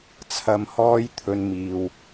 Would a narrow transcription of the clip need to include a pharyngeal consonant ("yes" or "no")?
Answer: no